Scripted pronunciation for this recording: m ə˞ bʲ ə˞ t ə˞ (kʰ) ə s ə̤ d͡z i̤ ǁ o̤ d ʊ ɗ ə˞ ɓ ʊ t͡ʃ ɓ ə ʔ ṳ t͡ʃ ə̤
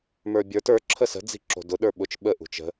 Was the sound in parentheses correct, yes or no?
no